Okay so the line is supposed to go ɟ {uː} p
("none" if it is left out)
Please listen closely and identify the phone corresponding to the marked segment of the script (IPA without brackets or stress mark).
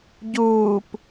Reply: uː